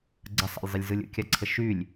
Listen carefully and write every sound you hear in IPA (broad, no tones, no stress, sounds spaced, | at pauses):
ɡ͡ǀ ə sˤ a̰ lʲ zˤ ə lʲ z ɯ lʲ ə̰ kʲ a ǀʰ ə ʃ y lʲ